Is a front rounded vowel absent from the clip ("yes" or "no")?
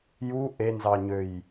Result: no